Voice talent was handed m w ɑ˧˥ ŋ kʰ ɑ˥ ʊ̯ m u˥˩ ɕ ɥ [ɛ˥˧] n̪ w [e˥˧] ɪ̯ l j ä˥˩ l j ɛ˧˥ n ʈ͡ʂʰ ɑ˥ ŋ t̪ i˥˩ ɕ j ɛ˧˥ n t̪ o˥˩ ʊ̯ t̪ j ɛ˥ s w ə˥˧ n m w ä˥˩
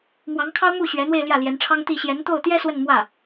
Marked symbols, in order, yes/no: no, yes

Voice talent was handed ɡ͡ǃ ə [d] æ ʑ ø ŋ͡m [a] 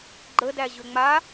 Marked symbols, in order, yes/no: yes, yes

